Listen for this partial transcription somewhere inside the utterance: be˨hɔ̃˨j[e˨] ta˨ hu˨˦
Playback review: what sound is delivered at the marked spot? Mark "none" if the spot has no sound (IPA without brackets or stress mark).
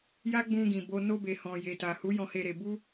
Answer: e˨